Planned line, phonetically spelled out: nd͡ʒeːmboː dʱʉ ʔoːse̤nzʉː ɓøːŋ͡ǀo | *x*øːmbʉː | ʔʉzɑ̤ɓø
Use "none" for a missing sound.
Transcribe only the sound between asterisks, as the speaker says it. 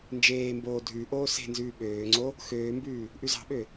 x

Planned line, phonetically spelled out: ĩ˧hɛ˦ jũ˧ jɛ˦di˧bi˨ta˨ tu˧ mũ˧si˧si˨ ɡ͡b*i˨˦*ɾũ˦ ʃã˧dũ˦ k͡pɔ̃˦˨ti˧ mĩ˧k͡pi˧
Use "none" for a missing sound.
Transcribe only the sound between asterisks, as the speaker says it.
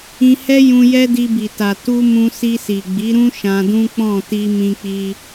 i˨˦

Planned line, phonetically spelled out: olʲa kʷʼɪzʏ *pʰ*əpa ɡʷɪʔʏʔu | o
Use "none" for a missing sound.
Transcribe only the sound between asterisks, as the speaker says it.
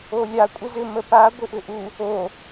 m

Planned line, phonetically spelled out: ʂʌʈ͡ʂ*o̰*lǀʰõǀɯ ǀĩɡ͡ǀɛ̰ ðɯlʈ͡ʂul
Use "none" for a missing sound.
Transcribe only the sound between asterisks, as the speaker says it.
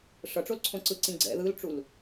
o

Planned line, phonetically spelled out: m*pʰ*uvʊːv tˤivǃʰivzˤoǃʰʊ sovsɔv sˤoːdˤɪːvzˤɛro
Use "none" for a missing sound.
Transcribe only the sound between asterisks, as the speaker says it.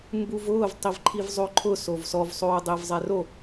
b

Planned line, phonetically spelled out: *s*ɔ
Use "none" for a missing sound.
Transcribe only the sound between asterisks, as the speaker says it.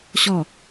ɕ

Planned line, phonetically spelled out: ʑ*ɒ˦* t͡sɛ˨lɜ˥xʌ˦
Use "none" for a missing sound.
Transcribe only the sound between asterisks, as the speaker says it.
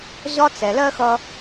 ɒ˦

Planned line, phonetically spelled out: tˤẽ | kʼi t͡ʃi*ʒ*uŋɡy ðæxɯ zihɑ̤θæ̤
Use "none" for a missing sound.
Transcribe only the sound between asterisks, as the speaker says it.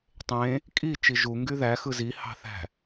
ʒ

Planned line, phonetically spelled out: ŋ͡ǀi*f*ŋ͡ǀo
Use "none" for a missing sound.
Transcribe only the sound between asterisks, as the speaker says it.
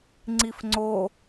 f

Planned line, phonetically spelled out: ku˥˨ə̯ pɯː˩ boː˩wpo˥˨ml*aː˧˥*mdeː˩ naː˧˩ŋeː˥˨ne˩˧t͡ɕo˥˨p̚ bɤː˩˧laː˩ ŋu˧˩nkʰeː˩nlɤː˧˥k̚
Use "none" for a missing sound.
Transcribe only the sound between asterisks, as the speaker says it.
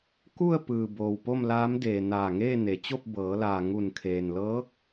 aː˧˥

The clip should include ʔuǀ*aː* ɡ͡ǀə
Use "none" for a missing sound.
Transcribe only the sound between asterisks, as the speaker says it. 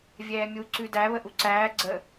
æː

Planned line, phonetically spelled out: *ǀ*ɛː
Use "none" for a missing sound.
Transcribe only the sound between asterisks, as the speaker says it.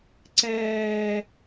ǀ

